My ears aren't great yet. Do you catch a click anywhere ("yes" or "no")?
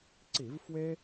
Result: yes